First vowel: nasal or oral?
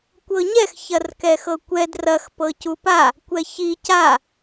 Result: oral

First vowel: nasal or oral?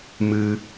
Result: oral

